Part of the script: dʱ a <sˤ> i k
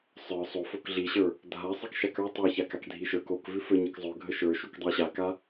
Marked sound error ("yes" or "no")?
no